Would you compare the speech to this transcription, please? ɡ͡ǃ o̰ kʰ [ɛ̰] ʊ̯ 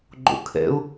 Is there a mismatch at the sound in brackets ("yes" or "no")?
no